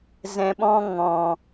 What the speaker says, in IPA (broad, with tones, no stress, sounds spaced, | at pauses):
z ɛ̃˨ ɓ ɔ̃˧ ŋ ɔ̃˨